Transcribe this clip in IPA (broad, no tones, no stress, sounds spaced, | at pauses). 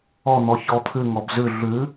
ɔ n̪ ɔ ç ɔ t̪ʰ ʉ ŋ ɔ b z ʉ ɮ ʉ